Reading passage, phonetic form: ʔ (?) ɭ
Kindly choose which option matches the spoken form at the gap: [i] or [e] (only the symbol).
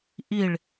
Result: i